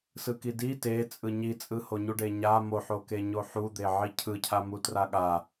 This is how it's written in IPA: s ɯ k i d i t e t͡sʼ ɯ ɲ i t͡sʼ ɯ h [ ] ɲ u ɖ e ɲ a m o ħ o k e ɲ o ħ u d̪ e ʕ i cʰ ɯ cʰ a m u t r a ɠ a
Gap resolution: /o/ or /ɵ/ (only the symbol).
o